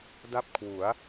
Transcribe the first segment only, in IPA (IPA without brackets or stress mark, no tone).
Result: d